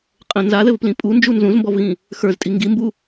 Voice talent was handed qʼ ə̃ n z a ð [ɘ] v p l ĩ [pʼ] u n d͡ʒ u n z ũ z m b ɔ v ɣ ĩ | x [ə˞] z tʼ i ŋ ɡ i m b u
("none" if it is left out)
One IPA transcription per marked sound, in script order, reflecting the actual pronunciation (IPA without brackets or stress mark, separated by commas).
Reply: ɘ, pʼ, ə˞